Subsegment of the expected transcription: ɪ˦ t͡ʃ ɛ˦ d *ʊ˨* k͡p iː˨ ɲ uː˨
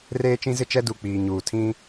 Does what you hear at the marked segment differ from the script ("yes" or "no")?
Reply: yes